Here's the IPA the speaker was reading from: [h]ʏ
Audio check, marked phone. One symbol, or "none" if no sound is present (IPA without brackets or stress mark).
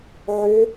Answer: ʕ